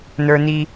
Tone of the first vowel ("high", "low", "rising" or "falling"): high